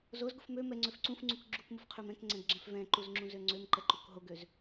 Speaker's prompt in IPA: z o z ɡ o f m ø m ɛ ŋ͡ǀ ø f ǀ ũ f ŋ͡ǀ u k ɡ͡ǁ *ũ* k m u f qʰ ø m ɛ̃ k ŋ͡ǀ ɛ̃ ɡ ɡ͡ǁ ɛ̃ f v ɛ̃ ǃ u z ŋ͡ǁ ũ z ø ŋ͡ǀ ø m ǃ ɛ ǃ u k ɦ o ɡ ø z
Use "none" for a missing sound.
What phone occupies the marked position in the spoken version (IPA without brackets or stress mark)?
u